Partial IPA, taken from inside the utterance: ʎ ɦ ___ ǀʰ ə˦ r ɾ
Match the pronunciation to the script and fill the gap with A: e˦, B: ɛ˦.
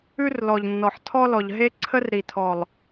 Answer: A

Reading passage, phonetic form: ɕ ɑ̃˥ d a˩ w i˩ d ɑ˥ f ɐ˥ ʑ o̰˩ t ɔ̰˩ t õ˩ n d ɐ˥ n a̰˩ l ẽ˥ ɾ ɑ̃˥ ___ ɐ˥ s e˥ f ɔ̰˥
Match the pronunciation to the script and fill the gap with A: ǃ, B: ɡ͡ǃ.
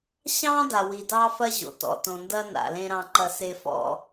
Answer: A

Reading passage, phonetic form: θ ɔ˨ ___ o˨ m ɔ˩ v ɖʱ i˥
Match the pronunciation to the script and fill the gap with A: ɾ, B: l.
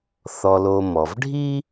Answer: B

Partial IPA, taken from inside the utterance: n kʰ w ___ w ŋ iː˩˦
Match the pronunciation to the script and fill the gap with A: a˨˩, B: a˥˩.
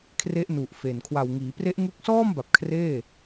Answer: A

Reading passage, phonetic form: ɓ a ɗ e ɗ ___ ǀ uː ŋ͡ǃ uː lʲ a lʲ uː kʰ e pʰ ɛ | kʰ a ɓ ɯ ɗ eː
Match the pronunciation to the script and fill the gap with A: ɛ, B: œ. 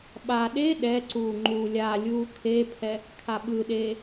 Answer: A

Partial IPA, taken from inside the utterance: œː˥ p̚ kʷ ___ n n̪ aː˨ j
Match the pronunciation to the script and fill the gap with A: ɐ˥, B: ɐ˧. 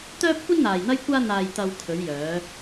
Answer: A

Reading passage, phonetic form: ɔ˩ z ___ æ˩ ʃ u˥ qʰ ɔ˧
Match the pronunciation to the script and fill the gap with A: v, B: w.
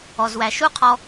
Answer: B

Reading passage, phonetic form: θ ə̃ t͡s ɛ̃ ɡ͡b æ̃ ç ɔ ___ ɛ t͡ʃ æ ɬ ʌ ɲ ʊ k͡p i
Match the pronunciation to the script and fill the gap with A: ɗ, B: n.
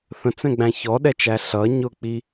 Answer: A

